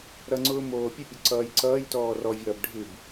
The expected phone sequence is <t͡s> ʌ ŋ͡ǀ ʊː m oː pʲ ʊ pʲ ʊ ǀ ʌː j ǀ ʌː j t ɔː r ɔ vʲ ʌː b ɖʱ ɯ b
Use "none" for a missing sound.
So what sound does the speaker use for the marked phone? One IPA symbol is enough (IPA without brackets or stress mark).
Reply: ɾ